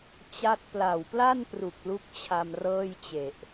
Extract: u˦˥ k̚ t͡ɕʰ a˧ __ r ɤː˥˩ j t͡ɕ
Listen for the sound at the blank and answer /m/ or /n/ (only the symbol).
m